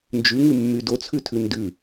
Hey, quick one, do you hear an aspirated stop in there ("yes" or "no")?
yes